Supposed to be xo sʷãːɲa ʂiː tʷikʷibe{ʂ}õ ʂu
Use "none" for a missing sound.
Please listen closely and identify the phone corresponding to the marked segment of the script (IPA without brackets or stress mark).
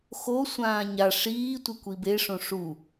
ʂ